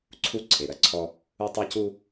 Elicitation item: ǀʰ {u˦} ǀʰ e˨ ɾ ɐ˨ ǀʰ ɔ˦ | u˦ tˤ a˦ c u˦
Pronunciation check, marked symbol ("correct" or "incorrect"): correct